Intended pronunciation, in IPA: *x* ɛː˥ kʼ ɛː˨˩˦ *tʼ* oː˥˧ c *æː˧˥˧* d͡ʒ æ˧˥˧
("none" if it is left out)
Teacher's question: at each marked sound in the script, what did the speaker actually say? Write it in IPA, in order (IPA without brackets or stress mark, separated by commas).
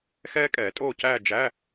x, tʼ, æː˥˧